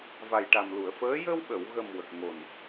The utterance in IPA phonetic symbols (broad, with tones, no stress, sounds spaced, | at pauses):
v a˨˩ j ʈ a˨˩ m l u˨˩˨ ə̯ f əː˧˥ j ə˧ w ɓ ə˨˩˨ w ɣ ə˨˩ m w ə˨˩ k̚ ŋ o˨˩ n